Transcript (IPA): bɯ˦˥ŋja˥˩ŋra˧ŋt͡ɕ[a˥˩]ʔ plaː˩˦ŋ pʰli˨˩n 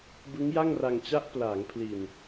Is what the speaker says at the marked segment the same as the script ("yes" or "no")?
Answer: no